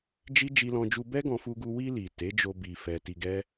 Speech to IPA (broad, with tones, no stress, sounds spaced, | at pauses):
d͡ʒ i˦ d͡ʒ i˧ l ɔ̃˧ d͡ʒ u˧ b ɛ˦ ɡ ɔ̃˧ f u˧ ɡ u˧ w i˧ l i˨ t e˨˦ d͡ʒ o˧ b i˧ f ɛ˧ t i˧ ɡ ɛ˦